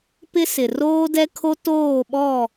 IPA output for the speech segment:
pɪ˦ sɪ˨roː˦ dɛ˦kʰo˦ toː˦˨ɓɔ˦˨

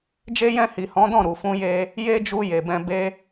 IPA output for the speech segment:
d͡ʒe˦jɛ̃˦˨ hi˨hɔ̃˨˦dɔ̃˦˨ ɾu˨fũ˧je˧ | je˦d͡ʒu˧ je˨bɛ̃˧ be˧

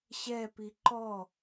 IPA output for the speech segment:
ɕɛpi ǃɔ

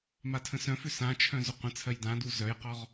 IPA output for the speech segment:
matʰə̃sœ̃fʏ sãt͡ʃʰœ̃ zʏqʷə̃t͡sʰɜj dãdu zœjqɔʁ

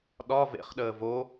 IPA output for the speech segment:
ɗɒ vḛχɗəː vo

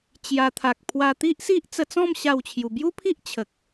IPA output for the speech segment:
t͡ɕja˧ t̪ʰa˨k̚pʰwa˧t̪i˦ʔsi˦ʔ t͡sə˧t͡sɔ̃˥˧m ɕa˥˧wt͡ɕʰju˧ bju˦pʰi˦ʔ t͡ɕʰə˨k̚

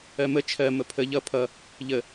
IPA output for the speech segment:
ɜmə t͡ʃʰɜ məpʰə ʎʌ pʰʌ | ʎə

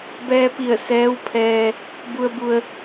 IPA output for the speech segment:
bɛː˧pi˧˩ə̯ sɛː˧˥wpʰɛː˧ | bu˧ə̯ bu˧ə̯

